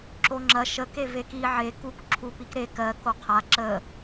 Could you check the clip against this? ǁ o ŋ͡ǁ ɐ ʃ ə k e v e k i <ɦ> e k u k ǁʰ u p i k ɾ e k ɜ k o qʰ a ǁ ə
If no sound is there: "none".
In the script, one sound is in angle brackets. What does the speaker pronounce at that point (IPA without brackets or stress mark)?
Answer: ʕ